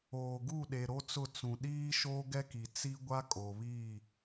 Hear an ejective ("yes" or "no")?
yes